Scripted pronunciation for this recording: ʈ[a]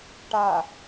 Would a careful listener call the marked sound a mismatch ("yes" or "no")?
no